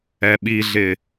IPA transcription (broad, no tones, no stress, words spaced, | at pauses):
ɛɓiɮɪ